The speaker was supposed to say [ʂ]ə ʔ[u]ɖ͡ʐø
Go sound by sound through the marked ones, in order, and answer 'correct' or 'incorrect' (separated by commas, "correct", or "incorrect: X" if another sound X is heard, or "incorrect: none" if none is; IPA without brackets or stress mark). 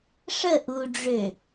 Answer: correct, correct